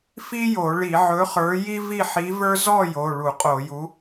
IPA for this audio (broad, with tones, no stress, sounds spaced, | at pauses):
f i˥ j o˧˩˧ ɭ i˧˩˧ ʕ ɵ˨˥ χ ə˞˨˥ j i˥ v i˥˨ ħ i˨˥ v ə˞˥ z ɔ˥˨ j o˩˧˩ ɭ u˧˩˧ qʼ o˧˩˧ j u˨˥